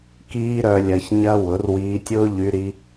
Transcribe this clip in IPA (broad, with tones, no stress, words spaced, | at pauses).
kiː˦ɾœ˧lʲɐ˧ç ɲɐ˦wʊ˨˦r wiː˧tʲʊː˦ʎy˧ɾi˧